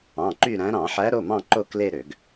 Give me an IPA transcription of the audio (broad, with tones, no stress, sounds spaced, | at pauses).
ɑ̃˩˧˩ ǃ y˦˨ ɾ æ̃˨˦ ɾ ɑ̃˧˩˧ ħ æ˨˦ ɾ o˩˧˩ m ɑ̃˦˨ ǃ o˦˨ k l e˦˨ ɾ ø˧˩˧ ɡ